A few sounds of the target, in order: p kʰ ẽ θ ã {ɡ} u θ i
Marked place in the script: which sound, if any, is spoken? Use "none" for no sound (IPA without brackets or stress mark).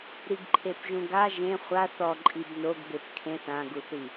ɡ